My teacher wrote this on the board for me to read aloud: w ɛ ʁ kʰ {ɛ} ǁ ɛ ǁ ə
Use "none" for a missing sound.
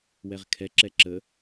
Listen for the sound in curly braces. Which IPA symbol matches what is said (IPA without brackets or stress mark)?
ɛ